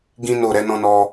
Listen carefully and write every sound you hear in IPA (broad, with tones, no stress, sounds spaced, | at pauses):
ɡ ĩ˦ n o˦˨ ɾ ɛ˨˦ n ɔ̃˧ n ɔ˧